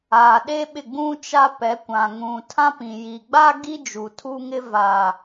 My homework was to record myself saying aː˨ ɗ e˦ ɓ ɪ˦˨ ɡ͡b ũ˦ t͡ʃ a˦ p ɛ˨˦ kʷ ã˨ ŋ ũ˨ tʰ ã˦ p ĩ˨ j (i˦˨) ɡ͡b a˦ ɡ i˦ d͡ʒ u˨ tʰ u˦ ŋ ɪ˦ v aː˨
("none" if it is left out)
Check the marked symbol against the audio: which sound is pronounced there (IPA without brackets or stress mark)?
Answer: i˨